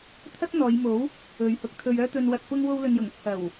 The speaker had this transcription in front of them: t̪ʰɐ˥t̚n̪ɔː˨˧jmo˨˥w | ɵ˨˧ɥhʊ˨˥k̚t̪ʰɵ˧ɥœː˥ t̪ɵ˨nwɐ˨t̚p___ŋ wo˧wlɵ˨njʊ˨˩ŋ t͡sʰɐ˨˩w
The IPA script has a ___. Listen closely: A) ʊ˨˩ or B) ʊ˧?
B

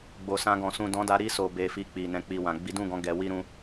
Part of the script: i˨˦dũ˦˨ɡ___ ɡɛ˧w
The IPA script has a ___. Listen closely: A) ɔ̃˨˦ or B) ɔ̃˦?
A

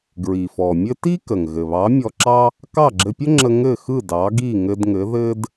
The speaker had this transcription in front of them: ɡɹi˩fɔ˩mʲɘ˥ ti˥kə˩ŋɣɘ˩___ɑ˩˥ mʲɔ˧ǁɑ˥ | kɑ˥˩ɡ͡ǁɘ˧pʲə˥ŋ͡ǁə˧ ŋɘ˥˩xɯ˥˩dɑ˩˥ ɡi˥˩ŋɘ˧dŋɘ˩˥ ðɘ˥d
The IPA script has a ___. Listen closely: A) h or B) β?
B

